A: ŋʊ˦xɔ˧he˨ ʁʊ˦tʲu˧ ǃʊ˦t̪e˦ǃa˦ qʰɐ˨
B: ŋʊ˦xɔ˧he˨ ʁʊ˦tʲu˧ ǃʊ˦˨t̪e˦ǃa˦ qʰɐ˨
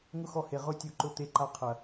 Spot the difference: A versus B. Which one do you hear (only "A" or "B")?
A